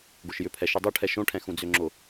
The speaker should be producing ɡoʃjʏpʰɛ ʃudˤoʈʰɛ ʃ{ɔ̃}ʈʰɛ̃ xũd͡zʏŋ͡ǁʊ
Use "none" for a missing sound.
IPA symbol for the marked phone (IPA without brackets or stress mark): õ